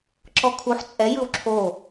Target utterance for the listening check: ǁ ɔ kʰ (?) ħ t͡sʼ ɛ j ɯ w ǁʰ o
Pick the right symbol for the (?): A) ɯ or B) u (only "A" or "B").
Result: B